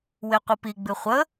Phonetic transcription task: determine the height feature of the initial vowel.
mid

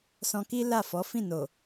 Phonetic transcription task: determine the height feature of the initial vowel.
mid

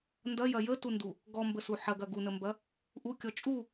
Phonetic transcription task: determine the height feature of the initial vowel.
low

